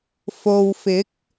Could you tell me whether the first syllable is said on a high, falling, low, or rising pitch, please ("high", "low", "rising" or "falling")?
low